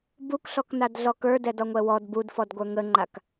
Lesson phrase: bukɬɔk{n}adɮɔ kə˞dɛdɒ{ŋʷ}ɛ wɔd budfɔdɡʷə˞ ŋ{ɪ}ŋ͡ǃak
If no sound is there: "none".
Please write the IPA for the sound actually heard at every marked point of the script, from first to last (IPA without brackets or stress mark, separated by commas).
n, ŋʷ, ə